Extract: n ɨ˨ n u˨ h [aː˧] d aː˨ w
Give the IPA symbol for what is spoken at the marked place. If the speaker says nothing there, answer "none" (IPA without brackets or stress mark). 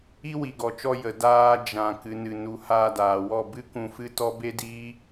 aː˧